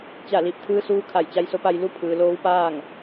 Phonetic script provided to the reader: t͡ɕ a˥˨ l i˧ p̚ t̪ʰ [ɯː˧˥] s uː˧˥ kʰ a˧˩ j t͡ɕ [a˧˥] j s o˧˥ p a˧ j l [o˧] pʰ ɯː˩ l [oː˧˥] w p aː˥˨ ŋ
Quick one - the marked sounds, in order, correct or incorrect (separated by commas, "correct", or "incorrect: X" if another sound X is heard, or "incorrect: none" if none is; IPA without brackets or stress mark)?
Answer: correct, correct, incorrect: u˧, correct